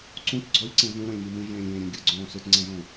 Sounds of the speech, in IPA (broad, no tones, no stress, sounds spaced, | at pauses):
ǀ ũ t ɡ͡ǀ ɔ lʲ ǀ ẽ v ũ ɾ õ lʲ m i m ĩ ʒ ẽː lʲ ẽː ɾʲ õ ɡʲ ɯ ɡ͡ǀ õː s ɯ t ŋ͡ǀ ɛ̃ ʒ õ